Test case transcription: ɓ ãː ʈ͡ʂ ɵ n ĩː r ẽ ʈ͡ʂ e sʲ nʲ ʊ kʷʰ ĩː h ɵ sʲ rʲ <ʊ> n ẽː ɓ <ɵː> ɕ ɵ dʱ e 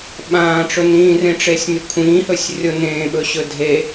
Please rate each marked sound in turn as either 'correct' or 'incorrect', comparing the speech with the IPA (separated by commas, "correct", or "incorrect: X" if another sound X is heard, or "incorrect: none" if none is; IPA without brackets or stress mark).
correct, incorrect: ɵ